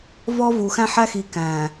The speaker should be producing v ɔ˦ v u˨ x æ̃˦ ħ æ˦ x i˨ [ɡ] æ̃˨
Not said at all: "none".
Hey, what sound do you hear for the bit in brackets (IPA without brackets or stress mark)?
k